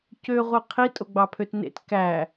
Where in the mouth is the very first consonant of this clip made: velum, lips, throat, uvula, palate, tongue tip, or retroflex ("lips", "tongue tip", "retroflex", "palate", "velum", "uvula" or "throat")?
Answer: palate